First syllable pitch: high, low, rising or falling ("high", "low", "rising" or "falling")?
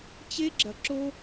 high